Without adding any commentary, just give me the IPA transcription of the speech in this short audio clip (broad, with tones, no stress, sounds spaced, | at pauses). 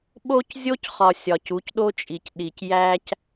ɓ o˦ c zʲ o˦ c χ ɒ˨ sʲ ɒ˨ c u˨˦ c ɗ o˦ t͡ʃʼ i˨ c ɗ i˨ c j æ˦ c